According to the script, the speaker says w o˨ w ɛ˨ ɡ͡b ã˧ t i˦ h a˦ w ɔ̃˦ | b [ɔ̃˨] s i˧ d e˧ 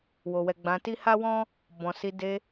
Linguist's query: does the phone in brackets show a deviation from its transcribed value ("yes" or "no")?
no